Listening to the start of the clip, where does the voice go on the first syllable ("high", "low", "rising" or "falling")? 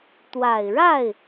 low